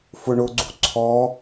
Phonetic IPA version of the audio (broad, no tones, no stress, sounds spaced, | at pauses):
f ʊ ɳ ʊ ɡ͡ǀ ṳ ǀʰ ɔ